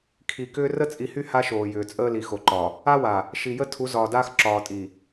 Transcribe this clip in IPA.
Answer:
kʰ i˨ k ʏː˦ r ə˦ t͡sʼ i˨ h y˦ h a˦ ʃ oː˨ j ʏː˨ t͡sʼ əː˦ l i˨ x o˨ ǃ ɒ˨ | a˦ w a˨ | ʃ i˨ j ə˦ tʰ u˨˦ z ɒː˨ d aː˦ x ǁ ɒː˨ tʼ i˨

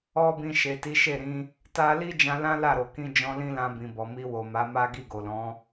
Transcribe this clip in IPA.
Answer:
ɔ˦ b ĩ˧ ʃ e˨ t i˨˦ ʃ e˦˨ ɾ ĩ˧ | t a˧ l i˦ d͡ʒ ã˧ l ã˦ l a˦˨ ɾ o˨ k ĩ˧ d͡ʒ ɔ̃˧ l ĩ˦ l ã˧ b ĩ˨ b ɔ˨ m i˧ w o˨ m a˨˦ m a˦ ɡ i˦˨ ɡ o˨ l ɔ̃˨˦

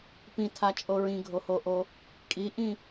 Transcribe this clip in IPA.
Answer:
p ĩ tʰ a t͡ʃʼ o ɹ ĩ ɡʱ o h o ʔ o | kʼ i ʔ ĩ

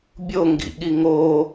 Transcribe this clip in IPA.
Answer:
bʲ o ŋ ɡ ḭ ɠ i ŋ o

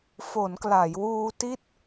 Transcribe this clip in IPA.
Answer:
f o˩˦ n k l a˩˦ j w uː˧ t i˥˩ t̚

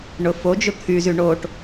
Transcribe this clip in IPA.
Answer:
ɳ ʊ f o d͡ʒ ʊ t̪ʰ y z y ɳ o ʈ

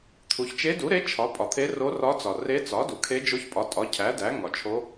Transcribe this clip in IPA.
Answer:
t̪ʰ u˩ ç t͡ʃ e˧˥ d u˩˥ ɾ e˧˥ t͡ʃʰ ɒ˩˥ pʼ ɒ˩ t̪ʰ e˧˥ r o˧˥ r ɒ˧˥ t͡s ɒ˩ r e˧˥ t͡s ɒ˩˥ d u˩ kʰ e˧˥ d͡ʒ o˧˥ ç pʼ ɒ˩˥ tʼ ɒ˩˥ cʰ æ˩˥ d æ˩˥ ŋ ɒ˩ t͡ʃʰ o˧˥

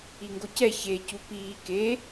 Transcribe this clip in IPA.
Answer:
i ŋ ɡ o c ɛ ç e c u p iː k e

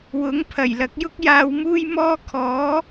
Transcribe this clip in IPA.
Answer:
w ʊ˨˥ ŋ pʰ ɐ˨˩ j l ɐ˨˥ k̚ j ʊ˥ k̚ j aː˧ w m uː˥ j m ɔː˥ kʰ ɔː˨˥

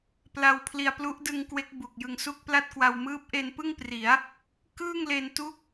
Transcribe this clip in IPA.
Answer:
p l a˧ w pʰ l i˧ a̯ p l u˦˥ ʔ d ɯ˧ ŋ k w e˦˥ k̚ b u˨˩ k̚ j ɯ˧ ŋ s u˥˩ k̚ p l a˥˩ t̚ k w a˧ w m ɯː˦˥ p̚ ʔ e˧ n p ɯ˥˩ ŋ p r i˩˦ a̯ | k ɯː˥˩ ŋ l e˧ n t u˦˥ k̚

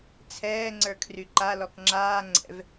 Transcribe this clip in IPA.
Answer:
t͡sʰ ɛː ŋ͡ǀ ə˞ kʰ r y ǃ a l ɔ k ŋ͡ǁ aː ŋ͡ǀ ɛ̰ v

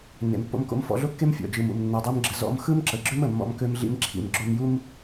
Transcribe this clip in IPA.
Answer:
nː ḛ˩ m pː o̰˧ m k o̰˧ m f ɔ̰˧ ɮ o˥ kː e˥ m fʲ ɔ̰˩ d͡ʒ ɯ˩ m ṵ˩ m nː ə˩ dˤ ø˥ m ɡ͡ǁ ə˧ z ɔ̰˥ m x ɯ˥ m ǁ ə˩ ɡ͡ǁ ʏ˥ m ə˩ mː ɔ̰˧ m k ø˧ m ɮ ḭ˧ m ǁʰ ḭ˩ m ɡ͡ǁ o˧ m j u˥ m

